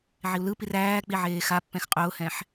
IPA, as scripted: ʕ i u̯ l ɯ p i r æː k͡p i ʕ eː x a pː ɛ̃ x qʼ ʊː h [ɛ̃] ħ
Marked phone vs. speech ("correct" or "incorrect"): correct